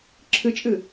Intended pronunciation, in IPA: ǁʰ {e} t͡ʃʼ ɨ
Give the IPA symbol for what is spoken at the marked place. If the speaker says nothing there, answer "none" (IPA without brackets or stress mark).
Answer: ɨ